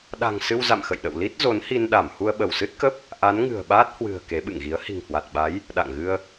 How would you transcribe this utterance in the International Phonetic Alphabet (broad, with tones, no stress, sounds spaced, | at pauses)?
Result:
ɗ a̤˨˩ ŋ s ɨ˧ w z a̰˧˨ m x ə̰˧˨ j ɗ ə̰˧˨ w l i˦˥ t̚ z o˨˦ n h i˧ n ɗ a˧˩ m h u˧ ə̯ ɓ ə˧˩ w s ɨ˦˥ t̚ k ə˦˥ p̚ | ʔ a˨˦ n ŋ ɨ̤˨˩ ə̯ ɓ aː˦˥ t̚ h w ɨ̤˨˩ ə̯ k e˨˦ ɓ ɨ̰˧˨ ŋ ɣ i˨˦ ə̯ h i̤˨˩ ŋ h w a˨˩ t̚ ɓ a˨˦ j | ɗ a̰˧˨ ŋ ɣ ɨ˧ ə̯